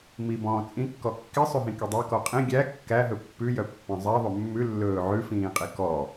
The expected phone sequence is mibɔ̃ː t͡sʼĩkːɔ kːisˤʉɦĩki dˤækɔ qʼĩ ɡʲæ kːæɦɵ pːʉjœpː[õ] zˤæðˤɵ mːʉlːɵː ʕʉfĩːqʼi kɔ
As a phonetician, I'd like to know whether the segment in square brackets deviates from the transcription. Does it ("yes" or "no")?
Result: yes